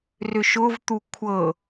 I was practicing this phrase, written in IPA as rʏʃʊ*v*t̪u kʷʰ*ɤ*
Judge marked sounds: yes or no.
yes, yes

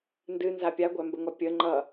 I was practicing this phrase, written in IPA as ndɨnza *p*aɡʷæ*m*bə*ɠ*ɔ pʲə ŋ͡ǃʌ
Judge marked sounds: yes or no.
no, yes, no

